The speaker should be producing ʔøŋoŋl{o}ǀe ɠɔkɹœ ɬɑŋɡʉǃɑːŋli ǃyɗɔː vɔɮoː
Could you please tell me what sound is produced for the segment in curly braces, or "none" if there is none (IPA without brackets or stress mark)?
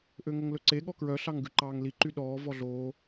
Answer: ɵ